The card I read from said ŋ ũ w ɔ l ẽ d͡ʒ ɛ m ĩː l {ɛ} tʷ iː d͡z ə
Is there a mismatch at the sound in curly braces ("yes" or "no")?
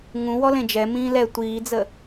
no